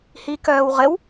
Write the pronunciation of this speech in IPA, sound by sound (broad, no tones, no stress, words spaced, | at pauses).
hikœːwʁɘw